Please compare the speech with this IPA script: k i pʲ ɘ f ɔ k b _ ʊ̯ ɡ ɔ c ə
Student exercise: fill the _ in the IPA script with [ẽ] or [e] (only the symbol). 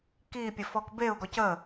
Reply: e